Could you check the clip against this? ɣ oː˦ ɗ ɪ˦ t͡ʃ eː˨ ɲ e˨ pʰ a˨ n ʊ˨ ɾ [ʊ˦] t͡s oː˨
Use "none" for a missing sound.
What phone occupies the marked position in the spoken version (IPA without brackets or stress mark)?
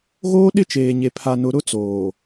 ʊ˦